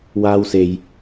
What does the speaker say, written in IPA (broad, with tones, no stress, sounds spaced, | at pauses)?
w aː˥ w s e˧ j